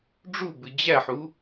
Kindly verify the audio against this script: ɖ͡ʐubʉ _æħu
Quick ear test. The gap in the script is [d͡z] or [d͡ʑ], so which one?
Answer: d͡ʑ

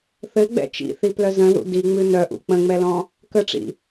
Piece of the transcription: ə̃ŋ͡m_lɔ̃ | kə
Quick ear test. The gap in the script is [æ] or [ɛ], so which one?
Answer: ɛ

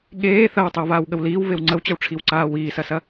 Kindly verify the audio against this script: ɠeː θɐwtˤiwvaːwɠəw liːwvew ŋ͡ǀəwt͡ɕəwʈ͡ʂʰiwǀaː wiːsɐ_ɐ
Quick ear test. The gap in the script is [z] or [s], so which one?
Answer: s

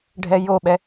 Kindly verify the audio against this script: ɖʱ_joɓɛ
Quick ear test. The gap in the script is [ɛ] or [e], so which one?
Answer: ɛ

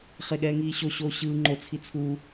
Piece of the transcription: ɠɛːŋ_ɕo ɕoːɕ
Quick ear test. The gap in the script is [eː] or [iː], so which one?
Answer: iː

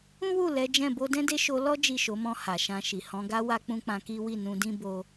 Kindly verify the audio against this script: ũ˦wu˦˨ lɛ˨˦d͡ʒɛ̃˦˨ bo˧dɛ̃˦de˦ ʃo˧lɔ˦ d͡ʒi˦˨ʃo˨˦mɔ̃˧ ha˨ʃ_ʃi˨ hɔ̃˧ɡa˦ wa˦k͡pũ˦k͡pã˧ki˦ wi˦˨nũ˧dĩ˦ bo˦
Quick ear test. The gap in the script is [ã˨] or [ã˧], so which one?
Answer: ã˧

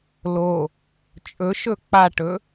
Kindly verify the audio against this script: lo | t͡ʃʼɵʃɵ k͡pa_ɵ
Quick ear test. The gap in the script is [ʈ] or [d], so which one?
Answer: ʈ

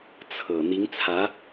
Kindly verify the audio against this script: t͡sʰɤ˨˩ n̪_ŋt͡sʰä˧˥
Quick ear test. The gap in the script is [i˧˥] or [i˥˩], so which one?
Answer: i˧˥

